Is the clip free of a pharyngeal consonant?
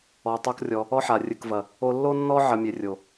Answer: no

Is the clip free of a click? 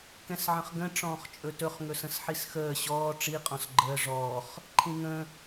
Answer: no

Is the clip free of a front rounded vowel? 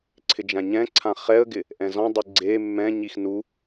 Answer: yes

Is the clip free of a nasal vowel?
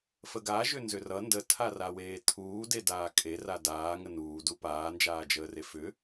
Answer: yes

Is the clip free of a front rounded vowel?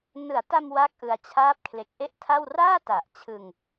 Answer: yes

